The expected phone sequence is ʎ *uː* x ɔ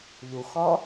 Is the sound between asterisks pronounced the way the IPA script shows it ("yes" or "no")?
no